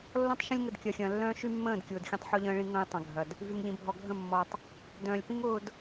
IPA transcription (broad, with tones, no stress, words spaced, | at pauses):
lːɔ̃˦tˤʃə̃˦lʲ ŋə˨dkʲɐ˨xʲɐ̃˨ lːœ̃ː˦ʃy˦mːə̃ː˦˨d kʲʊː˨dxʲœ̃˦tˤ ħo˦ʎə̃ː˦ɭĩ˦ ŋə̃ː˦j tˤɐ̃˨ɡʱɐ˨d | vy˨ŋʎĩ˨bʱɔ˨ ɡʱə̃˦˨ mːɔ˨tˤ | dœ̃ː˨lʲ pĩ˦ŋ ʊː˦d